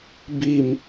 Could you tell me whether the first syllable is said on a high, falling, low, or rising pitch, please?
low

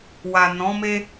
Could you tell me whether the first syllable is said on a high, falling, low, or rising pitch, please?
low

